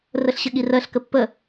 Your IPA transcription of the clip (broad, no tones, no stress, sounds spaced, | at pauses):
r ə ɬ ɕ ə ɠ i r ɜ ɬ k ə pː ə